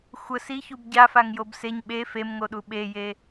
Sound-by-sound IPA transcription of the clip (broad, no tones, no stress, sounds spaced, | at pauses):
xʷ ə s i ç u b ɟ a f a ŋ j o b s e ɲ ɓ e f e m ŋ o ɗ u ɓ e j e